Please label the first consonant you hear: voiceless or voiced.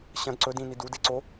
voiceless